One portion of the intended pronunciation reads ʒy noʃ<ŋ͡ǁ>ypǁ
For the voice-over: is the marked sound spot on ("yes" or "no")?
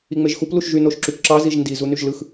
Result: no